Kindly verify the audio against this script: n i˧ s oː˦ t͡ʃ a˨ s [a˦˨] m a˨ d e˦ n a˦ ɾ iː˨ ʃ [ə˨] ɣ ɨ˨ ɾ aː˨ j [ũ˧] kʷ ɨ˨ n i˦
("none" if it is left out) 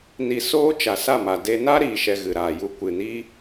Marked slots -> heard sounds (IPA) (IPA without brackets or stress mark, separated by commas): a˦˨, ɛ˨, u˧